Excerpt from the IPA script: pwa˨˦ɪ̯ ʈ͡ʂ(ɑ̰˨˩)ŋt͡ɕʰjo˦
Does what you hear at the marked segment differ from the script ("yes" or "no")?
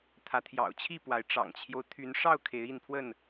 no